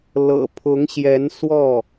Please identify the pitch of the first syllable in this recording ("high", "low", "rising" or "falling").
low